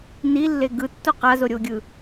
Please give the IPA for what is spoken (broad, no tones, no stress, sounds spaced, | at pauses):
n i lː e ɡ ɯ tː o q a z o ɾʲ o ɡʲ ɯ